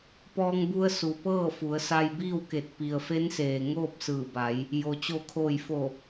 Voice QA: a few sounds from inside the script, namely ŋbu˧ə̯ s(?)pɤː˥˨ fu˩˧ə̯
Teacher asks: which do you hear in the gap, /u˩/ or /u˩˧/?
u˩˧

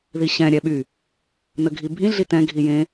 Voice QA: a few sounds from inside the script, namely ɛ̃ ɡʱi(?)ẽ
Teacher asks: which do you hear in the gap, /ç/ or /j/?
j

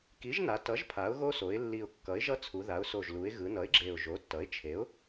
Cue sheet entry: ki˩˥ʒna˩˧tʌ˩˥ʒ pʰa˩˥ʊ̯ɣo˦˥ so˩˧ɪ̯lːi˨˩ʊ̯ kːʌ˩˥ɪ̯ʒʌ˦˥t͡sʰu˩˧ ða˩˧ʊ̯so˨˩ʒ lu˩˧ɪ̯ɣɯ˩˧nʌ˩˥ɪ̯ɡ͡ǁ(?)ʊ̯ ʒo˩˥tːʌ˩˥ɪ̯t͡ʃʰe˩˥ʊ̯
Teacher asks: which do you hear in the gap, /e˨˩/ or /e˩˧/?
e˨˩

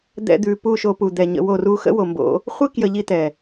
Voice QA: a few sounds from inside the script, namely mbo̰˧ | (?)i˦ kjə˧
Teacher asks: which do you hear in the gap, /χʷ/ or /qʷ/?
χʷ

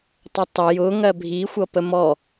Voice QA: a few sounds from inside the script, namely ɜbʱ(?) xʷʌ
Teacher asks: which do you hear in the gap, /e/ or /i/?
i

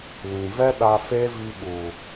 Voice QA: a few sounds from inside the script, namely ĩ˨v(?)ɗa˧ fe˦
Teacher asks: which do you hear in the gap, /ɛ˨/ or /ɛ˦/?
ɛ˦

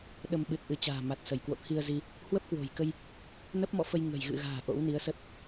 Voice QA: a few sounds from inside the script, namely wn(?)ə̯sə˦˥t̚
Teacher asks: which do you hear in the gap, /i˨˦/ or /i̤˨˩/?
i˨˦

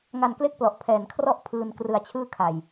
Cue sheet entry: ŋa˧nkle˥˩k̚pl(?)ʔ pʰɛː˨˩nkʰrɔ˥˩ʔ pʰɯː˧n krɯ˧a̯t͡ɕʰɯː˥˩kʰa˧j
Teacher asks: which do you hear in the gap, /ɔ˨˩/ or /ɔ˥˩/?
ɔ˨˩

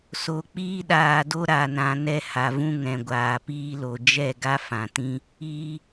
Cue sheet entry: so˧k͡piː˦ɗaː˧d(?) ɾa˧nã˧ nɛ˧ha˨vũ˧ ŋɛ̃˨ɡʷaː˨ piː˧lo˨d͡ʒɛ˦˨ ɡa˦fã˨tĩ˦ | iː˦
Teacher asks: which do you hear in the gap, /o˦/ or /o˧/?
o˦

